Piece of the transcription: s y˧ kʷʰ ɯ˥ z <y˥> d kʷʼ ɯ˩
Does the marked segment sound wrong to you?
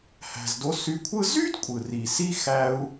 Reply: no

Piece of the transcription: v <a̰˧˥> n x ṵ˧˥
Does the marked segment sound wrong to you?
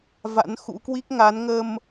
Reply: no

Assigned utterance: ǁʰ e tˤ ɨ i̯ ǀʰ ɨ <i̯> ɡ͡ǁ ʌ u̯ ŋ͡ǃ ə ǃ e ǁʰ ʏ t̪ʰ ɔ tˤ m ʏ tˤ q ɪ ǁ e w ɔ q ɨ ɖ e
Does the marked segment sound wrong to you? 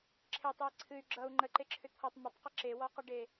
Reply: yes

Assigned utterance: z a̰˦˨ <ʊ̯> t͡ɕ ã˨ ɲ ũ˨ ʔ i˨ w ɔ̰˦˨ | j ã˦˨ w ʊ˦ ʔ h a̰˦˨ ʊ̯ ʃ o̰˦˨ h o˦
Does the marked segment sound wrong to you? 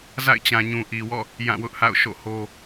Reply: yes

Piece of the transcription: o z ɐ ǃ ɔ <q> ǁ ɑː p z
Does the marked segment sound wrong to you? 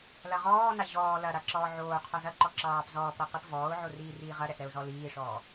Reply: yes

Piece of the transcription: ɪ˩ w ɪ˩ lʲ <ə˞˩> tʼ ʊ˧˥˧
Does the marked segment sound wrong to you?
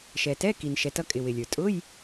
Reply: no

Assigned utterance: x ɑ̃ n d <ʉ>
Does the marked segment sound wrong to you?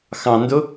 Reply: yes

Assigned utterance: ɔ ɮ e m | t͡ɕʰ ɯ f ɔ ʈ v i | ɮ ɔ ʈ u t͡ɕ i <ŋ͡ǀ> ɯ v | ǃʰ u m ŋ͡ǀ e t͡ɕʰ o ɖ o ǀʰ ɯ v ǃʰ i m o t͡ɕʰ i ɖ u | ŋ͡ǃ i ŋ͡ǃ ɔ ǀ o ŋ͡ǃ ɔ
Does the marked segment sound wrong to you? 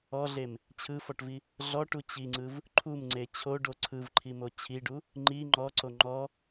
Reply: no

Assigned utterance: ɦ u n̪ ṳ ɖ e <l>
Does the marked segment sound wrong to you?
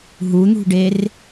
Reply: yes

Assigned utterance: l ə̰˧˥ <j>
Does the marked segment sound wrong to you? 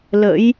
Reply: no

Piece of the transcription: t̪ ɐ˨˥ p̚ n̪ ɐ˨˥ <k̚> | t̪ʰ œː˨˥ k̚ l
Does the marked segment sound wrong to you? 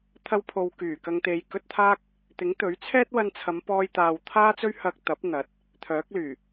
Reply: yes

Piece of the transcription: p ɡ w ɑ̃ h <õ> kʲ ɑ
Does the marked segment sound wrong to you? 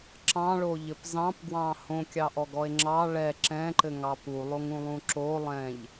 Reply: no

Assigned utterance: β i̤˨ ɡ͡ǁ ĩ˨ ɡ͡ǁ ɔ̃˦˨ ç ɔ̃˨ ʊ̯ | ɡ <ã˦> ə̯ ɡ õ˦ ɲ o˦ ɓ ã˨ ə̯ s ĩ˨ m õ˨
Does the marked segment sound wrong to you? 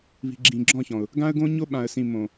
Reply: no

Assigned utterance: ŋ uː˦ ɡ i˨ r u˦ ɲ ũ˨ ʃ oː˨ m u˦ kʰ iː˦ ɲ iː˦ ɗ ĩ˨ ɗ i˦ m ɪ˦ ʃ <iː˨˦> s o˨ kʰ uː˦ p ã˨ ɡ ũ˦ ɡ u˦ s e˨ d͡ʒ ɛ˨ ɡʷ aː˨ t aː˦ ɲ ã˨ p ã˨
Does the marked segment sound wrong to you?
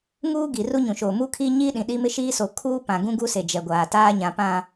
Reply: yes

